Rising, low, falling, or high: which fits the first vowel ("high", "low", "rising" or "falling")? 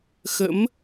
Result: rising